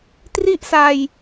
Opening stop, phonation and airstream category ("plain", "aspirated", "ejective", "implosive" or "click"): plain